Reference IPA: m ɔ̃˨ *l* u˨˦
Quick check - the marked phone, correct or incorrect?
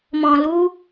correct